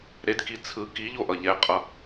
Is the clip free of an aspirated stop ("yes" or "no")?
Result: no